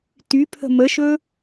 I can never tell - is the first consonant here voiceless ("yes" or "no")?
yes